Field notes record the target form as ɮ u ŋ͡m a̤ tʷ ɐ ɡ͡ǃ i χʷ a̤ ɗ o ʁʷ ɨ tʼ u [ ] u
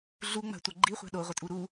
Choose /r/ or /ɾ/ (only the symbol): ɾ